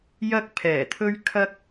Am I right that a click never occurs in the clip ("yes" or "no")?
yes